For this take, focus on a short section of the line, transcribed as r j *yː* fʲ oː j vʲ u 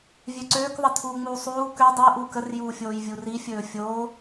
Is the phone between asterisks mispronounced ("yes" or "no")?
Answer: yes